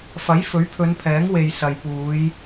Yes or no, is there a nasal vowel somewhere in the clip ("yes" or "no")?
no